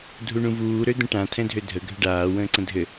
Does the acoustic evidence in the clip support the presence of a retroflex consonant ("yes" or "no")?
yes